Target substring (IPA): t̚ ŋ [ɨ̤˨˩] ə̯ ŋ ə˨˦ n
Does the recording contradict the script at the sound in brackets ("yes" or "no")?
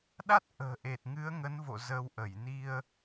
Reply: yes